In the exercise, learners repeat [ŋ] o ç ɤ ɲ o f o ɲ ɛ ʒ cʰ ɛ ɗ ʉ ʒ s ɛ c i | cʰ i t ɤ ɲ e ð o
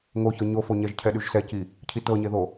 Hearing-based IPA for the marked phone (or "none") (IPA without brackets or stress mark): ŋ